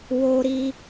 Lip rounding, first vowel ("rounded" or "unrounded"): rounded